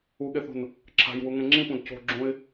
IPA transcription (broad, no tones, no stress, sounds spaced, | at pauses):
u ɠ e θ ṳ n | ǁʰ a̤ j w u ŋ ẽ ŋ͡ǁ ĩ p ũ d c o̤ ɡ͡ǁ ũ ɪ̯